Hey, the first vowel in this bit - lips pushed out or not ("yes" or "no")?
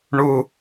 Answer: yes